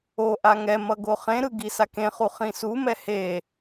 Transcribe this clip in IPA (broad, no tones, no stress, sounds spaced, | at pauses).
o ʔ a ŋ ɛ m ʌ ɡ o χ ẽ ɾ ɯ ɡ i s a k ẽ χ u χ ĩ s u m ɛ h e